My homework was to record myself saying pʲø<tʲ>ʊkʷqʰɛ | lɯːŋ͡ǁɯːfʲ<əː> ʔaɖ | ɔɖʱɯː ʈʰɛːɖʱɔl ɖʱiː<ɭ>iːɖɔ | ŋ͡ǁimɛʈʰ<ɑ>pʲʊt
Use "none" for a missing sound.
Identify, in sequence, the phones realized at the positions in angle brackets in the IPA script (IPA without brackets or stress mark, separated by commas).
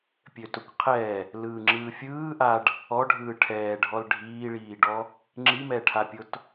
t, ɯː, ɭ, a